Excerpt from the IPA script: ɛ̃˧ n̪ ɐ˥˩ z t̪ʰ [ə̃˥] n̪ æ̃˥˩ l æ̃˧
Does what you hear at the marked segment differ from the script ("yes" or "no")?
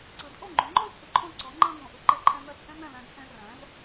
yes